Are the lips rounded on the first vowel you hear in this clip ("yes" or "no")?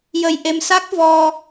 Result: no